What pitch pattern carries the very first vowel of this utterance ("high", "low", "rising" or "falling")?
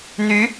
rising